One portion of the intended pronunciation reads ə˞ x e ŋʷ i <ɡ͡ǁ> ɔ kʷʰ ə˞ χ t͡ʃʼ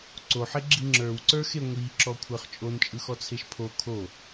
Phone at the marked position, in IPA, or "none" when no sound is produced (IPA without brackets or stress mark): ǁ